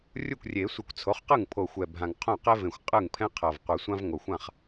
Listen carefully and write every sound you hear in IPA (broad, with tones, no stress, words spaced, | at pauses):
rʲu˥˩kʷrʲe˨˩˦sʷɯ˨˩˦kʷ t͡sʰo˩˥χqɯ˥˩ŋ pʰo˨˩xʷɛ˨˩ bʱã˨˩ŋ qʰõ˥˩qɛ˥vẽ˨˩xʷ qʼɯ˥˩ŋpʰɛ̃˥ qʰʌ˨˩v qʷɯ˨˩˦sʷã˥v ŋo˨˩xʷã˥˩χ